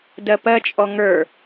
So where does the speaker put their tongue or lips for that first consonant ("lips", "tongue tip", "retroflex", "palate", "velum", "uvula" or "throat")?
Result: tongue tip